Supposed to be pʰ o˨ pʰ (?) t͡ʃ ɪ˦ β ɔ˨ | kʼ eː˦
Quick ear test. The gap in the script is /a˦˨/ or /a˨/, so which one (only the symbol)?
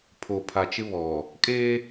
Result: a˨